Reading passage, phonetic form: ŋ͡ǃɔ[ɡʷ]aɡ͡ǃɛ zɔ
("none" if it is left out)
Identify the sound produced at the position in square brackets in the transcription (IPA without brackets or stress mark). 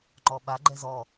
ɓ